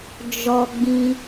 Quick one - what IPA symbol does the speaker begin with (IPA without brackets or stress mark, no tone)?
d͡ʒ